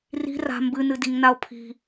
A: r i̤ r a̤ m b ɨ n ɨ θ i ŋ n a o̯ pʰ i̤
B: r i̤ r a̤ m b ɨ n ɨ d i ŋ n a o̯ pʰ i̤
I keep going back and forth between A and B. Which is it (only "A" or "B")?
B